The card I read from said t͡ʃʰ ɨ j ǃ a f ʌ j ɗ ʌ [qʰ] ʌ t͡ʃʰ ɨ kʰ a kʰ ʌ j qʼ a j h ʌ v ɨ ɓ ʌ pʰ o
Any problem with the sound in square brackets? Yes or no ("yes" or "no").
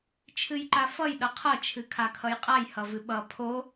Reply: no